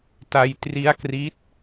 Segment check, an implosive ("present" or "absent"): absent